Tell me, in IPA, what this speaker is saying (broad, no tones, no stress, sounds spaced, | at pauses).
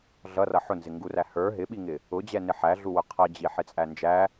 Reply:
ɮ ʌ r ʌ ħ ʊ n z ɪ ŋ ɡ u r æ h ə˞ ɦ ɪ ɓ i ŋ ɪ | ʊ d͡ʑ ɛ n ɪ ħ æ ɮ u w ʊ qʰ ʌ d͡ʑ i ħ ɪ t͡sʼ æ n d͡ʒ æ